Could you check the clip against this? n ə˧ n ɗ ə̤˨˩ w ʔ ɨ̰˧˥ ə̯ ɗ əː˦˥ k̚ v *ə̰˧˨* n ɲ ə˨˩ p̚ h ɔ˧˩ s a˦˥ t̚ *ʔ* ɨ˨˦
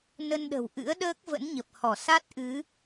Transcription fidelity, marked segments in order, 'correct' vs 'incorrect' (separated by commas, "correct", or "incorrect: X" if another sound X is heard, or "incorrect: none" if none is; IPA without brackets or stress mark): incorrect: ə̰˧˥, correct